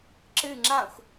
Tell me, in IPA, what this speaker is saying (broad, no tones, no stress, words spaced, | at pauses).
ǁɨ ŋ͡ǁãxʷ